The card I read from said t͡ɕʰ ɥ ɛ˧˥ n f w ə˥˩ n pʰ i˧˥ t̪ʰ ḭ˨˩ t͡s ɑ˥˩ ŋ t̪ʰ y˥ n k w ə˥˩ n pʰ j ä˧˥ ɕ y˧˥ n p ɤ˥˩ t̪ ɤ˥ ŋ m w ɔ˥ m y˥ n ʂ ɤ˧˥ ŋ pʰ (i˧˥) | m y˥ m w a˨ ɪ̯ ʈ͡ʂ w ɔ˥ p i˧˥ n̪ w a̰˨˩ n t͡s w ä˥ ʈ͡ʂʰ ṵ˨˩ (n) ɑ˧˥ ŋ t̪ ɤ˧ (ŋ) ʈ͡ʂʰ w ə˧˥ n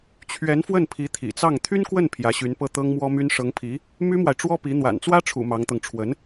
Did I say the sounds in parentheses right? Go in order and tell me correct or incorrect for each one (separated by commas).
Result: correct, incorrect, correct